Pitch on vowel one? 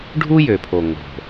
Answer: high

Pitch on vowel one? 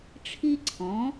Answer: high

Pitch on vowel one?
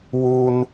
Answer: high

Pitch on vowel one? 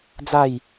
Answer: falling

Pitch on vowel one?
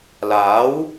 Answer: rising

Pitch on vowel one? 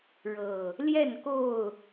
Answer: low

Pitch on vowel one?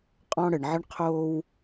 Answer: high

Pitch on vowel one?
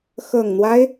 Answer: low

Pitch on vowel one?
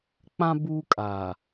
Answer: high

